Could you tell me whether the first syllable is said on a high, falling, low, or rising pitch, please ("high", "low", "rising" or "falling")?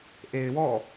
low